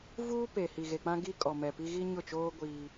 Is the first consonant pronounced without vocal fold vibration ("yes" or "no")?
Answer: no